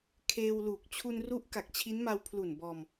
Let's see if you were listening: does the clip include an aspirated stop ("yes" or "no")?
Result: yes